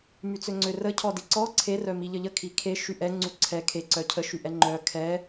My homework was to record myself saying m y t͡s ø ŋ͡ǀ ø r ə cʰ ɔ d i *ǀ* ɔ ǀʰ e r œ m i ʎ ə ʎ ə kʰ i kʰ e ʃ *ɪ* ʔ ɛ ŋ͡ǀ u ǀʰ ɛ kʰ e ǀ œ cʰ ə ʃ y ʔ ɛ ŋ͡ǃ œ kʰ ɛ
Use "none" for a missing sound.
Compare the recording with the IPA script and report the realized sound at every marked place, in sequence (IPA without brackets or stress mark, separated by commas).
ǀ, y